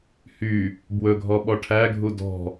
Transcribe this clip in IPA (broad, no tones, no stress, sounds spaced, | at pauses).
h y | b w ɵ ɡʱ ɔ ɓ ɔ ʈʰ æ ɡʱ u d ɔ̤